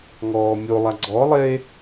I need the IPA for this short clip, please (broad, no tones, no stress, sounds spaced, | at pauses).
ŋ ɔː mʲ o lˠ a ɡ͡ǀ ɔ lˠ e